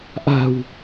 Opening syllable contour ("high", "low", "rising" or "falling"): low